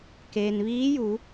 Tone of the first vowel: low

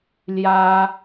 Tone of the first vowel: high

